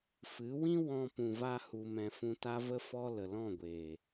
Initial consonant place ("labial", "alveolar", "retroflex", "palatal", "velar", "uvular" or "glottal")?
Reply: labial